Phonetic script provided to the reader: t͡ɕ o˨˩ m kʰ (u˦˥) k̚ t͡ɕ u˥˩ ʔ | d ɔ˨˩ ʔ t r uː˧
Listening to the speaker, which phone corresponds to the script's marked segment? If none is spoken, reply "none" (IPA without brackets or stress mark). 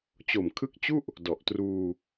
ɯ˦˥